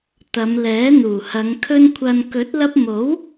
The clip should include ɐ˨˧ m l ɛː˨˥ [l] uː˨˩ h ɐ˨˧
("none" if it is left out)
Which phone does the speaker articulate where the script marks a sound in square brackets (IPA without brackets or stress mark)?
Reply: n̪